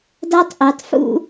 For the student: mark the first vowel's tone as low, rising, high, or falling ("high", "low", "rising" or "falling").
high